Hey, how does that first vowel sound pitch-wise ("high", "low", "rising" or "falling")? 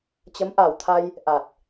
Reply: rising